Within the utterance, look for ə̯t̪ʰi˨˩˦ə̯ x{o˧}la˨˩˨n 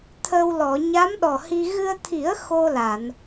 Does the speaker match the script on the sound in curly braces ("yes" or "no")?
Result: yes